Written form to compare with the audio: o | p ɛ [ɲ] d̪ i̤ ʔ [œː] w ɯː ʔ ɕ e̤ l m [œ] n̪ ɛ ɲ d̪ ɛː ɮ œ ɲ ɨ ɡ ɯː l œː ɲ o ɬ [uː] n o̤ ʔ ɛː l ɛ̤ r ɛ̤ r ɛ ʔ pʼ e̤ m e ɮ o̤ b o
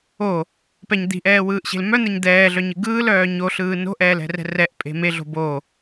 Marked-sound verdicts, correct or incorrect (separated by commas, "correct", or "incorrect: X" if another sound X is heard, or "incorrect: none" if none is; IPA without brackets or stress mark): correct, incorrect: ɛː, correct, incorrect: ɯː